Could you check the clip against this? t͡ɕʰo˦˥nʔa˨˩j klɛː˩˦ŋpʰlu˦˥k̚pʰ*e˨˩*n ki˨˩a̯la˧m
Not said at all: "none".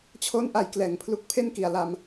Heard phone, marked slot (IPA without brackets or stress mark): e˥˩